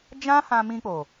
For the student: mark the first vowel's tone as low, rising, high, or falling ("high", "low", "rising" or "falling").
high